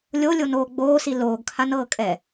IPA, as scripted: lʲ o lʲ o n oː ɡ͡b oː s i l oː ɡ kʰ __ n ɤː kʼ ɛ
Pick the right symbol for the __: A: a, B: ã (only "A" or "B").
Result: A